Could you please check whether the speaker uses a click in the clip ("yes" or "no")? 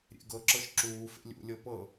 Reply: yes